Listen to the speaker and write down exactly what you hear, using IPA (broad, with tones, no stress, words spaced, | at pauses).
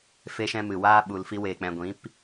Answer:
fe˧ʃɛ̃˧mɨ˨ waː˦ ɓu˧lfi˦weː˧k͡pɛ̃˧ ɡʷĩ˨˦p